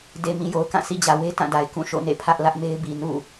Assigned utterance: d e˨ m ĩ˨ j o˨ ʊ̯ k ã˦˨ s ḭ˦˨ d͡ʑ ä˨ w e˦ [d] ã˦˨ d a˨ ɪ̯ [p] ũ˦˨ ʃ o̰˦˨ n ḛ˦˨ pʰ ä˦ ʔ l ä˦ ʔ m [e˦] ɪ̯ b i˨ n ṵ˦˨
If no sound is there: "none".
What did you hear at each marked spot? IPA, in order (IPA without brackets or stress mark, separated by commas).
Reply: t, k, e˦